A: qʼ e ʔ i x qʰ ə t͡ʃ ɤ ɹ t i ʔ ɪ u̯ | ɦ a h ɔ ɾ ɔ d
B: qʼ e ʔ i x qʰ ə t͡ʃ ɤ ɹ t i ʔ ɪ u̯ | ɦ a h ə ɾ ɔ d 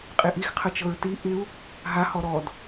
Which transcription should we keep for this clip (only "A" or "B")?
A